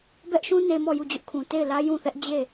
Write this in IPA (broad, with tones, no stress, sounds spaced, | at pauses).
b ɛ˦ ʔ ʃ ũ˦ n e˦ m ɔ˦˨ j u˦˨ d͡ʑ ʊ˦ ʔ kʰ ũ˨ t e˦˨ ɪ̯ l ä˦ j ũ˦˨ θ ɛ˦ ʔ d͡ʑ e˦˨